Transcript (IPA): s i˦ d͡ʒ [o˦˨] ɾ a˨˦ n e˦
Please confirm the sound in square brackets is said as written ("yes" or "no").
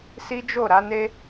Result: yes